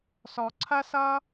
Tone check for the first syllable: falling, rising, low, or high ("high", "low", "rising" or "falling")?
low